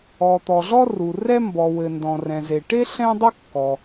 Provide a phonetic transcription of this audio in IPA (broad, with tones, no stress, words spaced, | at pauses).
ɔ˩t̪ɔ˩ɮɔ˥ ru˩ rɛ˥mbɔ˩wɘ˩ ndɔ̃˩rɛ̃˩ze˩ʈe˥ ɬɛ̃˥dˤu˥kːɔ˩